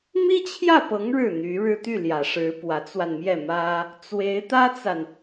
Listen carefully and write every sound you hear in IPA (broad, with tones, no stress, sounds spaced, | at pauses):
m i˥ t͡ɕʰ j ä˥˩ p ɤ˧˥ ŋ ɻ ɻ̩˥˩ n̪ y˧˥ ɻ ɻ̩˥ t̪ y˥˩ l j ä˨˩ ʂ ɻ̩˧˥ p w ä˧˥ t͡s w a˧ n m j ɛ˥˩ m ä˥ | t͡s w e˧˥ ɪ̯ t̪ ä˥ t͡s a˨ n